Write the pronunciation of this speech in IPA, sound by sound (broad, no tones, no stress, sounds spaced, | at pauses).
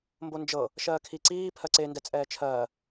m b o n d͡ʒ ɤ | ʃ ɜː kʰ i ǀ iː pʰ ɜ ǀ e n d ɛ t͡sʼ ɛː t͡ʃʰ ɜː